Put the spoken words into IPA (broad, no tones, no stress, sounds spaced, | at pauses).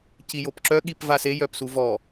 c i j o p ǁ œ ɠ i p v a s e j œ p s u v ɔ